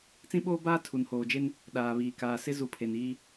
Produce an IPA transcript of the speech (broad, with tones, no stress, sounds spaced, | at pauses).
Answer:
t͡s ĩ˦ ɓ oː˦ b aː˦ tʰ u˨ n h oː˨ d͡ʒ e˦ n | ɗ aː˨ β iː˨ k aː˨ s ɪ˦ z u˨˦ pʰ e˨ n iː˦